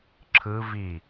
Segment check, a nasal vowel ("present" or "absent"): absent